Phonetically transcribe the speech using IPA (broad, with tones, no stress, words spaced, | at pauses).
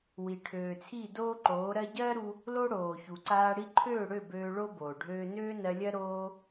wi˨ʈʰøː˨t͡sʰi˦˨ doː˦ǃoː˨˦ɾɜ˦ ɟɜː˦ɾu˧ | lo˦ ɽoː˨çu˨ǀaː˧ ɽi˧ǃʰøː˦˨ɽø˦˨ bøː˧ɭo˦boː˨ ɖʱøː˧nøː˦nɜ˧lʲɜ˦ ɾoː˦